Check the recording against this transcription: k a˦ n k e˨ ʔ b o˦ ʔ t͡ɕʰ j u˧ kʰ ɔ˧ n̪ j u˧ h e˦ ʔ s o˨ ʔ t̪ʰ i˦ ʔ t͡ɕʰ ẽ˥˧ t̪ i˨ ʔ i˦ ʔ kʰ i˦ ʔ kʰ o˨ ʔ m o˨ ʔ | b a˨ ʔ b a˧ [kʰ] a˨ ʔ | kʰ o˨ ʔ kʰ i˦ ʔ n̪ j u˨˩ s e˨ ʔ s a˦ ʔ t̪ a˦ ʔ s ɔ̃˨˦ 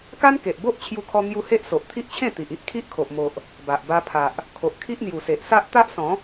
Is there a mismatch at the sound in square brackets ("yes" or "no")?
yes